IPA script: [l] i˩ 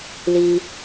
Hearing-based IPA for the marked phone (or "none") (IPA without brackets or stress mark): l